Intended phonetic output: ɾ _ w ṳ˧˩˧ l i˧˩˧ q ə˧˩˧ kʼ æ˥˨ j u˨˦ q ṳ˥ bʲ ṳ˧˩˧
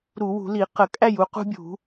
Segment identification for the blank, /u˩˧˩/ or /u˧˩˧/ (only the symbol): u˧˩˧